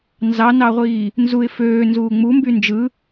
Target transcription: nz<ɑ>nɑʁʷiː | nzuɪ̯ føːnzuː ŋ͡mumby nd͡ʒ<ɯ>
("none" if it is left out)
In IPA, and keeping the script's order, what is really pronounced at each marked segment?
ɑ, ɯ

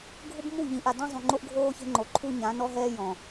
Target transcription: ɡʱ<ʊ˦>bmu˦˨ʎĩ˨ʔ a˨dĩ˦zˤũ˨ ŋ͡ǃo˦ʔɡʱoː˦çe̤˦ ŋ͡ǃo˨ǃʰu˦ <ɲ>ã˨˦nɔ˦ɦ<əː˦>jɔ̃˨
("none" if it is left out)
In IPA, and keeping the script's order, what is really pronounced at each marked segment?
ʊ˦, ɲ, ɛː˦

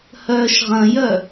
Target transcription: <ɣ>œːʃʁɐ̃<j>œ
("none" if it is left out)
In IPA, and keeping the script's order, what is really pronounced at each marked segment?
h, j

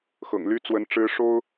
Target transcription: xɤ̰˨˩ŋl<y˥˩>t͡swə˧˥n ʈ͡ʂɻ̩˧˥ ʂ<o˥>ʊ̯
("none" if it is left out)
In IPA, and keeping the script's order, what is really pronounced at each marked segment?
y˥, o˥

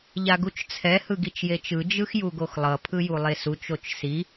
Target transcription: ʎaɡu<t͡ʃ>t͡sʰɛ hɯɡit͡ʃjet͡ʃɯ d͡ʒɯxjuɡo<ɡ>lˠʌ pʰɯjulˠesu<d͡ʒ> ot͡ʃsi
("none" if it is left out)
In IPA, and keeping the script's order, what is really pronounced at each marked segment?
t͡ʃ, x, t͡ʃ

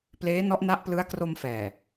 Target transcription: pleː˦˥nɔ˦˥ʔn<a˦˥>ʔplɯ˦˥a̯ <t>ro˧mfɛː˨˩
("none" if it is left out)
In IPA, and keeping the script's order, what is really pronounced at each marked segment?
a˦˥, k

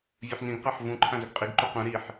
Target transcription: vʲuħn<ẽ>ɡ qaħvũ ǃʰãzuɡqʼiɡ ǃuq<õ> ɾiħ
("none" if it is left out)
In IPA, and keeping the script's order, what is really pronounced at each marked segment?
ĩ, ũ

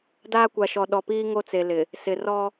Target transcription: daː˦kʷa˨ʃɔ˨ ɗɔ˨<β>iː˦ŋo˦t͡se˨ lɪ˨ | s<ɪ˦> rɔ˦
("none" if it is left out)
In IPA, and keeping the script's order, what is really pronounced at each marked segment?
p, ɪ˨

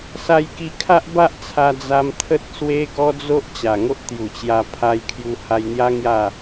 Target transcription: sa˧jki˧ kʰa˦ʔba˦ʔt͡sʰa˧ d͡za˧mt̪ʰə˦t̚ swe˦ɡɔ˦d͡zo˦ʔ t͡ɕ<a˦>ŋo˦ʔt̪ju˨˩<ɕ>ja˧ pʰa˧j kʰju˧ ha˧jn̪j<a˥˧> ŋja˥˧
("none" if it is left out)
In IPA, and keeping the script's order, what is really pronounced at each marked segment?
a˨˩, t͡ɕ, a˦

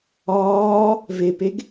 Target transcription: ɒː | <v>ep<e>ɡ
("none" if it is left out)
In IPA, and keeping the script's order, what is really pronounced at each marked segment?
v, e

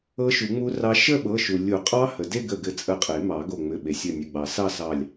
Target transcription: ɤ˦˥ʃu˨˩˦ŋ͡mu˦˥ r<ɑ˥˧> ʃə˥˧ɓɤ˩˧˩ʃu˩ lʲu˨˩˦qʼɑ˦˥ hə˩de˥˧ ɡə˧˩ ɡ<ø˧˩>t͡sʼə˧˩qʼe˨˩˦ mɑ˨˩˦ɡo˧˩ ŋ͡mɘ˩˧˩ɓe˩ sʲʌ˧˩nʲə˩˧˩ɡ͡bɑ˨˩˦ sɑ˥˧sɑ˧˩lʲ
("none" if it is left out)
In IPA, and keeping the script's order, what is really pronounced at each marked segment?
ɑ˦˥, ɘ˧˩

